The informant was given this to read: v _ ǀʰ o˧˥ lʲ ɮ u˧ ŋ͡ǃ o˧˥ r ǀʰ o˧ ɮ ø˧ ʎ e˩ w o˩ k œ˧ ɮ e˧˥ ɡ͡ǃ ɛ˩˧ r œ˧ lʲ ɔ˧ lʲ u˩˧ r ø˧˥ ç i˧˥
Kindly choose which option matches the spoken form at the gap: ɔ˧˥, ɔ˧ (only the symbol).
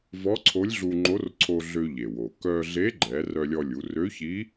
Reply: ɔ˧˥